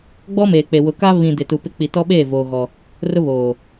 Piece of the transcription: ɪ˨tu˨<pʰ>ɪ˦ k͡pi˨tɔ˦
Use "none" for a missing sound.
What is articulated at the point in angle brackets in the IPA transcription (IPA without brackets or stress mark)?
p